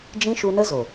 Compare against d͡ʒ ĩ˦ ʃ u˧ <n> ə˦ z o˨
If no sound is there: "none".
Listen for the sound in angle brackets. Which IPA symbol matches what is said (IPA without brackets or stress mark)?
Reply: n